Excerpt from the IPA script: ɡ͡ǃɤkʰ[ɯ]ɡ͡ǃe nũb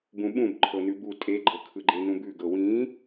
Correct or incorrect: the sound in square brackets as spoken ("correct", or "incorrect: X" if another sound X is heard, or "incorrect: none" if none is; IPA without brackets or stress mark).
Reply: correct